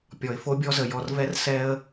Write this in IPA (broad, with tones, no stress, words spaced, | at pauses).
pʲɔ˨ɪ̯fo˦bʲɔ˦zə˨ jɔ˨rvɛ˦r sɛ˦ə̯